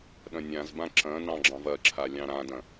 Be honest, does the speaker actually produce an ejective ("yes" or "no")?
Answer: no